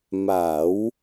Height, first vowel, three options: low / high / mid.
low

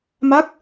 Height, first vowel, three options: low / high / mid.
low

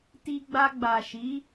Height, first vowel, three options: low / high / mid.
high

